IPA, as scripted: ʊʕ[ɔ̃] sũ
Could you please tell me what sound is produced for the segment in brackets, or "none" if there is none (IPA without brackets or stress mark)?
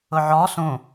ɔ